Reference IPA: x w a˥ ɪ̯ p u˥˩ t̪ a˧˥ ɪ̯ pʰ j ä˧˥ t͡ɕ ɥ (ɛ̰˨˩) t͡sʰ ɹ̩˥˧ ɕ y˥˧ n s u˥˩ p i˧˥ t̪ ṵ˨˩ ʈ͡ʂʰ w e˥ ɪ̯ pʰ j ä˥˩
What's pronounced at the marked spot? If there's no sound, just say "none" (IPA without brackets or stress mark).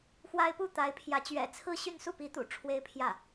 ɛ̰˨˩